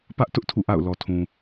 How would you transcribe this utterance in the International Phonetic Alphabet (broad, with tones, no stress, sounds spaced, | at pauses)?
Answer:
p ä˦ ʔ t ʊ˦ ʔ tʰ ṵ˦˨ ʔ a̰˦˨ ʊ̯ l ɔ˨ tʰ ũ˨